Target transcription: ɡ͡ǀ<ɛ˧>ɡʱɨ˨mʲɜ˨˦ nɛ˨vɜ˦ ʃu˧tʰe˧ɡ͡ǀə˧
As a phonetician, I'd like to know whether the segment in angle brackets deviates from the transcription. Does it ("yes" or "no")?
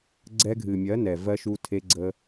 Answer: no